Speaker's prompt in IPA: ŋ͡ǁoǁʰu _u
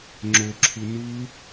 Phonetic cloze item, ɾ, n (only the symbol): n